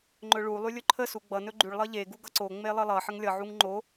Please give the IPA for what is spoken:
ŋ͡ǃɵɭu lˠylʲɵǃʰə suɡ͡bʌ nɵɡ͡ǃyɭ lˠʌʎe ɡuɡʌǀo ŋ͡melˠəlˠʌ ħəŋlʲʌ ʕuŋŋ͡ǃo

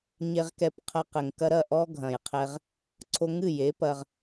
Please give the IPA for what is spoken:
ɲe˧ʁkɛ˧pqʰɐ˧qɘ˨ŋ kɐ˧ɾɐ˦˨ ʔɔ˦ ɡʱɐ̃˨jqʰɛ˧ʁ | ǀʰo˧ŋɨ˦˨je˨˦pɐ˧ʁ

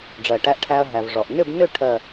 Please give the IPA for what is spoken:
ɖ͡ʐɜ˩ ʈæ˧ʔʈʰæ˧ɐ̯ ɦæ˩v ʐɔ˩ʔnʏ˥˧bnʏ˥˧ ʈʰɜ˥˧

